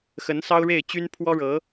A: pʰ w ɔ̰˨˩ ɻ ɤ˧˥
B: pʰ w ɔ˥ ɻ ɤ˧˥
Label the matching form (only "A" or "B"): B